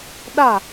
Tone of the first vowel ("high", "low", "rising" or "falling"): falling